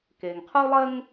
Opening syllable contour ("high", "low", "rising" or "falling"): low